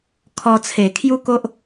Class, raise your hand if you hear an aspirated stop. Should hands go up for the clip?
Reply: yes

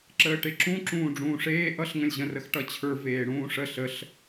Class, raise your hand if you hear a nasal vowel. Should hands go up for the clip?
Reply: yes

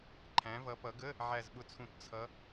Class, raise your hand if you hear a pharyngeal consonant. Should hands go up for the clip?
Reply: yes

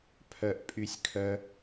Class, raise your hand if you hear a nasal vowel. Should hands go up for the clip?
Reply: no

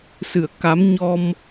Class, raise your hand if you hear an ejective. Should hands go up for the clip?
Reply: no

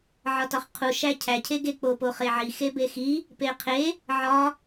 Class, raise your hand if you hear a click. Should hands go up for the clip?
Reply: no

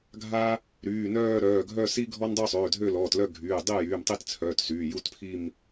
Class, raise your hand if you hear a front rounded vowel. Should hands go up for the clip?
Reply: yes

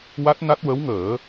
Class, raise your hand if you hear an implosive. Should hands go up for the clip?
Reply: no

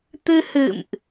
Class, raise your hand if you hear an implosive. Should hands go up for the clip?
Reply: no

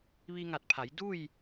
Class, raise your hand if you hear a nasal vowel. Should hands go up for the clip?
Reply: no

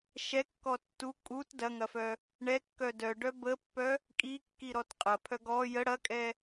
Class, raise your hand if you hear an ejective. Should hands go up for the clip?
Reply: yes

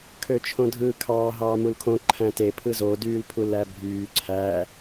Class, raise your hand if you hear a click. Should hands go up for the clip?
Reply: yes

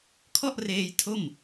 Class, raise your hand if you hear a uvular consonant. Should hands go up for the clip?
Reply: no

